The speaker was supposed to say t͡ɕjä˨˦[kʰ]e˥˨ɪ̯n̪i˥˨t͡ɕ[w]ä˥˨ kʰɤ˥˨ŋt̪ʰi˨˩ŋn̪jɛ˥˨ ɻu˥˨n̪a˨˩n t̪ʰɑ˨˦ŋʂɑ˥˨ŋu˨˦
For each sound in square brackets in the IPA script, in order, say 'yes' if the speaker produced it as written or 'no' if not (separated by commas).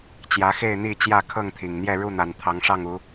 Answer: no, no